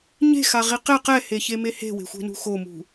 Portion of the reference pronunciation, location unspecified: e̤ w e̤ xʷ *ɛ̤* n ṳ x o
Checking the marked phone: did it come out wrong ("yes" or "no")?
no